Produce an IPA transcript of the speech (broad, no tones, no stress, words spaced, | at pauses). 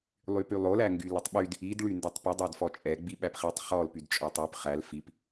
lˠypylˠolæ ŋɡylətˤɓyd | idɭy ndɛtˤpədˤædfɔ t͡ʃʼɛɡ͡bi ɓæpχitˤ χɔl pydt͡ʃʼɔtˤyp χæl fip